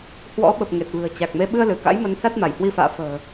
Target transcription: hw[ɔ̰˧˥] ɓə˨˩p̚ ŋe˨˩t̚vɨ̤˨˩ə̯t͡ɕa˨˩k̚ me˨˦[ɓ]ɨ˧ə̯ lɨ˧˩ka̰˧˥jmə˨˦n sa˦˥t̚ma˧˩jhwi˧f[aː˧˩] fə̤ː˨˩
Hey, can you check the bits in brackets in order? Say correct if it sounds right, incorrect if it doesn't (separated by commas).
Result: correct, correct, incorrect